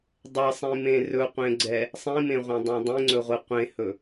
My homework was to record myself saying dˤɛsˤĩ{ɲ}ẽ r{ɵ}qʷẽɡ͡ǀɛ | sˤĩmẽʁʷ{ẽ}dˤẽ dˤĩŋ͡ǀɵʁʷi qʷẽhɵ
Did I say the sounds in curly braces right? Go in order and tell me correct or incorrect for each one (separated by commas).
incorrect, correct, correct